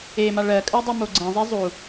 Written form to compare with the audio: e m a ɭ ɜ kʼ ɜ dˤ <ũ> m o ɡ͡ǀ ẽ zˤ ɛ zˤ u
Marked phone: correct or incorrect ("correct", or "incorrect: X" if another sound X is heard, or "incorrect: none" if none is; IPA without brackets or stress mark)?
incorrect: u